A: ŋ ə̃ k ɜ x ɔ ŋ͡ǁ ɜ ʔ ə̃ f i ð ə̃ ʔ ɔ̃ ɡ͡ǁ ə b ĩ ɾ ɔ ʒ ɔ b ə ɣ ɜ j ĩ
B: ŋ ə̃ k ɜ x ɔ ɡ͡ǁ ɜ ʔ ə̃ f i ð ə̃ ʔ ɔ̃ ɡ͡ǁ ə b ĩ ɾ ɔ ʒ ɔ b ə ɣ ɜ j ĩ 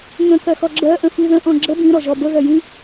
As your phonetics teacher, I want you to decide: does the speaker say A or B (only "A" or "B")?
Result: B